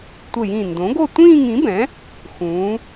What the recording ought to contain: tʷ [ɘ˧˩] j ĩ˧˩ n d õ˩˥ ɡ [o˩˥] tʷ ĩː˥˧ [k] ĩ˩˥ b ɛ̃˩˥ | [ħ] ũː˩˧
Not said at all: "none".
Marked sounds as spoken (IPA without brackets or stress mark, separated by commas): ɘ˧˩, o˥˧, ŋ, x